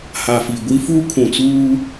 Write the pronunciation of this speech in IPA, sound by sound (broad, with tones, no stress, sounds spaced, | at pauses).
h a˨ f i˨ ɡʷ i˦ f u˦ kʰ ũ˨ t͡s uː˦